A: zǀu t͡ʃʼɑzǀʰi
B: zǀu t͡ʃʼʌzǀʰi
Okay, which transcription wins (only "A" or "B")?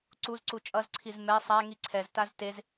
B